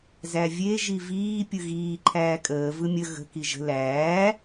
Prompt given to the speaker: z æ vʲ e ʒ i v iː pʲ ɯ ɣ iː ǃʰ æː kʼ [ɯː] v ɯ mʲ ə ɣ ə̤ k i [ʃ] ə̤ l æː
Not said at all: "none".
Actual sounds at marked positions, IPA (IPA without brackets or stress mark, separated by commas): əː, ʒ